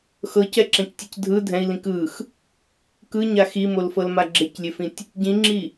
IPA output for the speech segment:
x ɤ c ɛ ǁ ɛ̃ c tʲ ɯ c dʱ ɯ dʱ ɛ̃ i̯ l ĩ k ɯ x | k ɯ ɲ a x i m o l f ɤ l m a ɡ͡ǁ e c lʲ e f ĩ tʲ | ɟ ĩ ŋ͡ǁ i

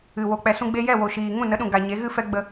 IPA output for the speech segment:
ɨ˨ w o˨ k͡p ɛ˨ s ũ˧ ɡ͡b e˧ j ɛ˦˨ w o˨ ʃ iː˨ ŋ ũ˦˨ n ə˨˦ ɗ ũ˨ ɡ a˨ ɲ e˨˦ ɣ ɨ˦ f ɛ˦ ɡ͡b ə˧

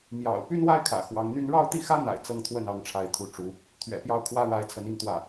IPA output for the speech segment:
m j ɑ̰˨˩ ʊ̯ p y˥ n w a˥ ɪ̯ kʰ ä̰˨˩ x w ɑ˧˥ ŋ n̪ y˥ n ɻ ɑ˥˧ ʊ̯ t̪ i˥˩ x ä˥ n̪ a̰˨˩ ɪ̯ t͡s ɤ˥˧ ŋ t̪ʰ w ə˥˩ n ɑ˧˥ ŋ ʈ͡ʂʰ a˥˩ ɪ̯ t̪ʰ u˥ ʈ͡ʂ u˧˥ | t̪ʰ ɥ ɛ̰˨˩ p j ɑ˥˩ ʊ̯ kʰ w ä˥ ɻ a˧˥ ɪ̯ t͡sʰ ə˧˥ n i˥˧ ŋ t̪ w ä˥˩

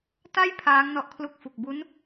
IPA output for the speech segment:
t a˥˩ j pʰ aː˦˥ ŋ n ɔ˦˥ ʔ kʰ l u˦˥ k̚ f u˨˩ k̚ b u˦˥ n

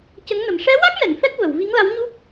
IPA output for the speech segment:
c ə˧˥ ŋ n ə˨˩ m ʂ ɛ˧˥ w a˦˥ k̚ n ɛ˨˩˨ n f ɛ˦˥ k̚ v ə˨˩˨ w v i˧˥ ŋ l a˧˥ w ɲ u˦˥ k̚

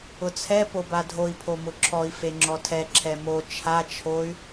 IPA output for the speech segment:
ʊ t͡sʰ ɛ p o b a dʱ o i̯ pʰ o m ʊ ǁʰ ɔ i̯ f e ŋ͡ǁ ɔ tʰ ɛ ǁʰ ɛ m o t͡ʃʰ a t͡ʃʰ o y̯

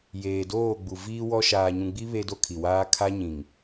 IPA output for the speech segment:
j eː˨ d oː˦˨ ɡ͡b u˨ v iː˦ w ɔ˦ ʃ aː˨ ɲ ũ˨ ɡ͡b i˦ β e˦ d o˦ kʰ i˨ w aː˦ kʰ a˦ ɲ ĩ˨ ŋ

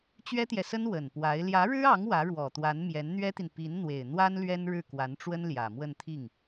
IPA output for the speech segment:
t͡ɕ ɥ ɛ˥ t̪ j ɛ˨ s ə˥ n w ə˨˩ n p w a˧˥ ɪ̯ l j ä˧˥ ɻ ɻ̩˥ ɑ˧˥ ŋ w ä˧˥ ɻ w ɔ˨˩ t̪ w a˧˥ n m j ɛ˧˥ n n̪ ɥ ɛ˥ t̪ i˨ n p i˧˥ n n̪ w e˨˩ ɪ̯ n̪ w a˥ n l ɥ ɛ˥ n ɻ ɻ̩˥˩ k w a˧˥ n ʈ͡ʂ w ə˥ n l j ä˨˩ m w ə˥˧ n t̪ʰ i˥˩ ŋ

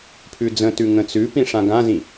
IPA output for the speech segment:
pʰ ʉ d͡z ə̃ t ʉ ŋ ə̃ t͡s ʉ p ĩ ʂ ã ɡ ã z ĩ

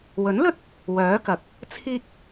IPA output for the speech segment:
w ɵ˨˥ n l ɵ˥ t̚ | w œː˨˥ k ɐ˨˥ k̚ | t͡sʰ iː˥ k̚

